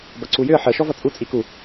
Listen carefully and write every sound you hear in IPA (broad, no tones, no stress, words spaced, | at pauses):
bʌǀujʏə̯ ħə ʃɔvʌt͡sʼu t͡sʼiku